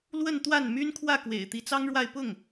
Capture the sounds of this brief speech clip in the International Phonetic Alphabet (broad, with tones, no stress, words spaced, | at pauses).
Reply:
lwə˥˧nt̪wa˥˩n my˥n kʰwä˥˩kwḛ˨˩ɪ̯ t̪i˧˥t͡sɑ˥ŋɻwa˥˧ɪ̯ pʊ˥˩ŋ